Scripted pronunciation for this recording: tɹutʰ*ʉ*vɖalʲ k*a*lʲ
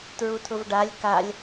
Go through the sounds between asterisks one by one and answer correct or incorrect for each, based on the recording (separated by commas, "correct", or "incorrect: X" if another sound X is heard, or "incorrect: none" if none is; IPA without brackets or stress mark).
incorrect: ʊ, correct